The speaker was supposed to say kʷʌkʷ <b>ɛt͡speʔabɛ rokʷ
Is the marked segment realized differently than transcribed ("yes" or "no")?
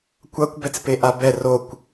no